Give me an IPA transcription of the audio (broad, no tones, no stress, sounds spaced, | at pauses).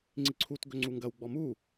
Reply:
ŋ͡ǀ i ǀʰ u t ɡ ɵ ŋ͡ǀ u ŋ ɡ ɐ w ɡ͡b ɔ m u